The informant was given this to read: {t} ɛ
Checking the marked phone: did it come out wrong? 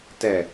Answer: no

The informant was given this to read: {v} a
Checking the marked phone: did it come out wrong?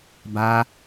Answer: yes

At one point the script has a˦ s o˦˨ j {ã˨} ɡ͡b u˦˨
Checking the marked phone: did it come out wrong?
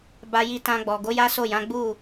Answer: yes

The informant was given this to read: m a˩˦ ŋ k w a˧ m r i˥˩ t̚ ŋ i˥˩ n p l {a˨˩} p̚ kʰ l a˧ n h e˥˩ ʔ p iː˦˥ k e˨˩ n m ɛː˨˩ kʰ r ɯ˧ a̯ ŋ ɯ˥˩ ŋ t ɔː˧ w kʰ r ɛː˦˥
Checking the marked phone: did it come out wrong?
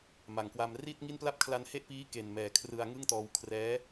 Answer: yes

